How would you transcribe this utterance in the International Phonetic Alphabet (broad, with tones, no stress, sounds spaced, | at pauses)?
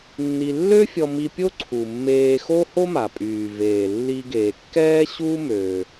nː i˧ lː ø˥ fʲ ɔ˧ m i˧ pʲ o˥ ǀʰ u˩ mː eː˧ x o˥ h o˥ m a˩ pʼ yː˩ v eː˩ lː i˧ ɡ eː˩ kː ɛː˥ ɕ u˥ m ø˩